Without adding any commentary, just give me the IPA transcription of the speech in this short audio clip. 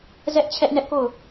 z ɛ˦ ʔ t͡ɕʰ ɛ˦ ʔ n ɛ˦ ʔ k o˦˨ ʊ̯

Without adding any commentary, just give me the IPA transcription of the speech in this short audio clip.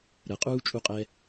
ɾ ə qʼ uː t͡ʃʼ u qʼ ɛ

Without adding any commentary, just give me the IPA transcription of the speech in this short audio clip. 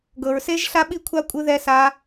ɡ ɤ˧ ɹ s e˦˥ ʒ ɬ a˦˥ ɓ i˦˥ kʷʰ a˦˥ kʷʼ ɯ˦˥ ð ɛ˦˥ s a˦˥

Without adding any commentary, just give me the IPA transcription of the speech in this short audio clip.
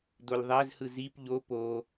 d o lʲ ðˤ æ z h ɯ z i p ʎ o p o

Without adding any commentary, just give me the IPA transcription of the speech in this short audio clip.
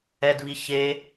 ɛ d β i ç e

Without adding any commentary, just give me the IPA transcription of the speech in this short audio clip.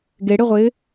ɡ e ɽ ɪ ʁʷ ɪː

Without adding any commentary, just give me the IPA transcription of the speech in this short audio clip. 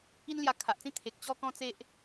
i˦ n l j a˧ kʰ a˨ ʔ t͡s ĩ˥˧ t̪ʰ e˨ k̚ t͡ɕ ɔ˦ k ɔ̃˦ t͡s e˦ ʔ

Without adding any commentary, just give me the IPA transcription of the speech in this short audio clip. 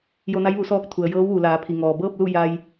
j o˧ n a˧˥ j ʋ u˩˧ s ɔː˧ k̚ t̪ʰ u˩ ə̯ j ɤː˧˥ w ʋ u˩ l aː˩˧ pʰ i˩ ŋ ɔː˩ b ɤː˥˨ p̚ l u˥˨ j a˧ j

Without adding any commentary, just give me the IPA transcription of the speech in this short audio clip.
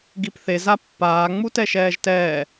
ɡ i p θ e z a pː aː ŋ͡m u t ɛ ʃ ɛː ʒ t ɛː

